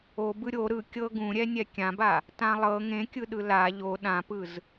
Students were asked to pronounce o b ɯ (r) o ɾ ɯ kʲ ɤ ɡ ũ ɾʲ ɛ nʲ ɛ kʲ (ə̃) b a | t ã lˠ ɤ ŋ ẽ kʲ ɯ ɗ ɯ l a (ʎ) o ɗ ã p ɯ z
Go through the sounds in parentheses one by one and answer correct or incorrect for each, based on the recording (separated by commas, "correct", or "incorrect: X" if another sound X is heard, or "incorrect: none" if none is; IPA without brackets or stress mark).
incorrect: ɾʲ, incorrect: ã, correct